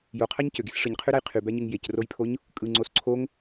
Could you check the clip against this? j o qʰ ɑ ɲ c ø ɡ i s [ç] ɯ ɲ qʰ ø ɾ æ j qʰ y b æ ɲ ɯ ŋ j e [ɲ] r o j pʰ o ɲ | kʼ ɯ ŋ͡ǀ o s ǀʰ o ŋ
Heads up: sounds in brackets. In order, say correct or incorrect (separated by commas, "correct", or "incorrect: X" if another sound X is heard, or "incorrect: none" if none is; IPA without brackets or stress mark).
incorrect: ʂ, incorrect: c